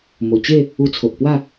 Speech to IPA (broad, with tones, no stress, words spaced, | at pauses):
mo˨˩t͡ɕe˥˧ | u˧t͡sʰo˨ʔpwa˥˧